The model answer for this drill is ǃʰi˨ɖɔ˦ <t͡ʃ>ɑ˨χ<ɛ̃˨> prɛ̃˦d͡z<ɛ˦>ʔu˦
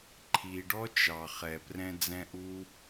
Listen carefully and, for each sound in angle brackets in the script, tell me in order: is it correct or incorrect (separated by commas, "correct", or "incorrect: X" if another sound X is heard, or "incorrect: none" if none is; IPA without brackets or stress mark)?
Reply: correct, incorrect: ɛ˨, incorrect: ɛ̃˦